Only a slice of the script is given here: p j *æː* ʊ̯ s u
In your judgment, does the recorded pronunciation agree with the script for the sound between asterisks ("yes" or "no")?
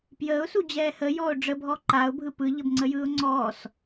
no